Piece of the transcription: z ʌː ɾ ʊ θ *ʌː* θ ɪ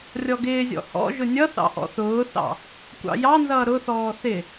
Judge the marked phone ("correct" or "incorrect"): incorrect